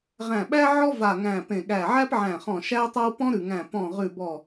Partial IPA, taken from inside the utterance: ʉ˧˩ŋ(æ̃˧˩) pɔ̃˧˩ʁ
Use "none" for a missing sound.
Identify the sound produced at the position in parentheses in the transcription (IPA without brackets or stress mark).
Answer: æ̃˧˩